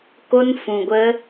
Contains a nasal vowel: yes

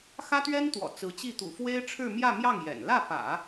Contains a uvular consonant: no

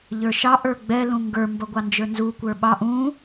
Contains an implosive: yes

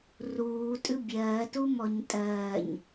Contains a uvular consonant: no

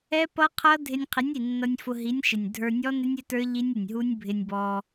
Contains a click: no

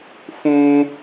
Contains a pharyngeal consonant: no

